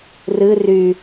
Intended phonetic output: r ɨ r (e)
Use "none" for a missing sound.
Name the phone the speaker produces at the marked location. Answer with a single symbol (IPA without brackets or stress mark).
y